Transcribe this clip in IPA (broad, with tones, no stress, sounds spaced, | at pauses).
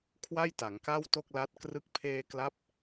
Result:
kʰ w a˥˩ j t a˩˦ ŋ k a˥˩ w t o˥˩ k̚ l a˦˥ t̚ k r ɯ˥˩ k̚ pʰ eː˧ k l a˦˥ p̚